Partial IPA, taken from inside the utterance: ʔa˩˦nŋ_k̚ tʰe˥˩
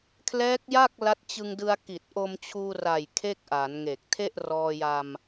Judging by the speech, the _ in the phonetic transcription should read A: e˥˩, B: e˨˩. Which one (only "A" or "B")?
B